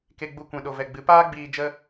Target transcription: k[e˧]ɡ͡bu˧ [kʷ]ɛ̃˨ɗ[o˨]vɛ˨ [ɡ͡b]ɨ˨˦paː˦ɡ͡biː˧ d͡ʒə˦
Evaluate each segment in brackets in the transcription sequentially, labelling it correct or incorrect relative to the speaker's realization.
correct, correct, correct, correct

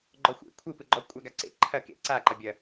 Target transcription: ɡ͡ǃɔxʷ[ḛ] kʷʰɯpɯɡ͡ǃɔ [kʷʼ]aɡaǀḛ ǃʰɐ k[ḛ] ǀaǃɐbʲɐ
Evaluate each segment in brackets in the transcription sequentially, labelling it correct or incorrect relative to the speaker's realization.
correct, correct, correct

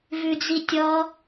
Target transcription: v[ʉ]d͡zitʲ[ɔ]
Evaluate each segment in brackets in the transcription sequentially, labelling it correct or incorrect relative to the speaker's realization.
correct, correct

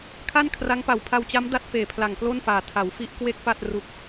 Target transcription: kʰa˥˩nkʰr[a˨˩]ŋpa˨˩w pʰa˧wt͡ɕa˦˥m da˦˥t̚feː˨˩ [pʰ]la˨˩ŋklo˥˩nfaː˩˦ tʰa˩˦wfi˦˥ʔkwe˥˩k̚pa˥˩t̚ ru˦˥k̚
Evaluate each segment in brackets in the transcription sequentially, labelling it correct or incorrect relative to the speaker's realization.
incorrect: a˦˥, correct

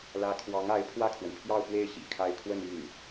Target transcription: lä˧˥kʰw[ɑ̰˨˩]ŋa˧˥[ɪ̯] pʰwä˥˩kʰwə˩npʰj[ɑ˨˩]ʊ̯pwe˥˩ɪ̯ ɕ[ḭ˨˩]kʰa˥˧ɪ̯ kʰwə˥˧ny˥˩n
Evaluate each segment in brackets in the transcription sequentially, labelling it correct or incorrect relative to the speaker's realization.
incorrect: ɑ˧˥, correct, incorrect: ɑ˥˧, correct

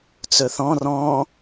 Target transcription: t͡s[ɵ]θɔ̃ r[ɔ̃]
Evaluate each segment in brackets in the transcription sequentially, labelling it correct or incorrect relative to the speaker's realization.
correct, correct

